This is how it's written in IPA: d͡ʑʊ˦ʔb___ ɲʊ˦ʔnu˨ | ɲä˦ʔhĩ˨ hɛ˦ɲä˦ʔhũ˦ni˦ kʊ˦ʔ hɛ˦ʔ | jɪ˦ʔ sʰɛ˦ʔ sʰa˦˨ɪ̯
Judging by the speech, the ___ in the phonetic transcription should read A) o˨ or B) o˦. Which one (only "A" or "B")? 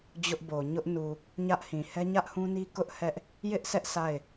A